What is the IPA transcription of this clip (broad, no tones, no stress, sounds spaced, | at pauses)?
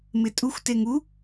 m ɪ tʼ u xʷ t e ŋ u